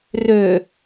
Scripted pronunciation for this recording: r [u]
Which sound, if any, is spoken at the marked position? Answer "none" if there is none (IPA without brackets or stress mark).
ø